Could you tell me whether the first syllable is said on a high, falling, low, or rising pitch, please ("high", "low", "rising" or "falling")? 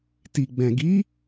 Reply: low